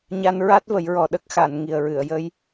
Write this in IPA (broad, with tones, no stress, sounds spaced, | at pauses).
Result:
ɲ a˧ n ɹ a˦˥ t̚ v ə˨˩˦ j ɹ ɔ˨˩ ɗ ə˦˥ k̚ x a˨˩˨ n ŋ i˨˩ ə̯ ɹ ɨ˨˩˨ ə̯ j ə˧˥ j